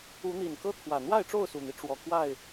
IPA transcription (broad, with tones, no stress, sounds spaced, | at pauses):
u˨˦ n̪ i˨˩ n k ɤ˦ t̪ʰ w ä˨˩ n̪ w a˥˨ ɪ̯ ʈ͡ʂ o˥˨ ʊ̯ s u˨˩ n̪ i˦ ʈ͡ʂ w ɔ˨˩ k w a˥˨ ɪ̯